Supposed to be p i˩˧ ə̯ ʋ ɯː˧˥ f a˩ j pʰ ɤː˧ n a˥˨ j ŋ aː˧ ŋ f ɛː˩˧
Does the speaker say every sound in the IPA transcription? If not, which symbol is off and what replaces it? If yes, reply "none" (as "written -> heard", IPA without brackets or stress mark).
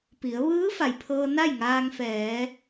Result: none